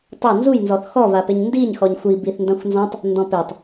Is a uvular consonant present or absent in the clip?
absent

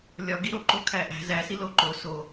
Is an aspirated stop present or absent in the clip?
present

